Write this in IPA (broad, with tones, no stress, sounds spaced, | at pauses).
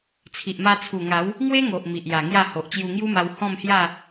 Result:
t͡sʰ i˨ ʔ m a˧ t͡sʰ u˨˩ ŋ a˨˦ w | ŋ w e˦ ŋ o˨ ʔ m i˨ ʔ j a˨˩ ŋ j a˥˧ h o˨ ʔ t͡ɕ j u˧ ŋ j u˦ m a˧ w h ɔ̃˥˧ m h j a˥˧